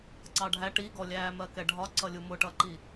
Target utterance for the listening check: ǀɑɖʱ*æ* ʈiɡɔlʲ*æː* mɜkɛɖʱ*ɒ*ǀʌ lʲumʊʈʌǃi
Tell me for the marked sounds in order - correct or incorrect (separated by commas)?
correct, correct, correct